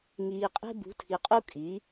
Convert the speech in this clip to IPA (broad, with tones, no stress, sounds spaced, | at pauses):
ŋ iː˨ qʼ e̤˦ b ṳ˨˦ tʰ i˨ qʼ u˦ kʼ i˨˦